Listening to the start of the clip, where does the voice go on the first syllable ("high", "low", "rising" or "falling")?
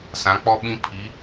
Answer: rising